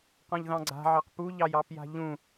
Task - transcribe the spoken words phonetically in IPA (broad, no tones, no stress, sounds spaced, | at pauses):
q ɔ̃ ʎ ð ɑ̃ ɡ͡ǀ a̤ ʕ ɑ q p u ʎ ɑ j ɑ p j a̤ ʎ ũ